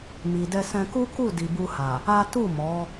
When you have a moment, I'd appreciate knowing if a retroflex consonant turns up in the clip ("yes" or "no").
no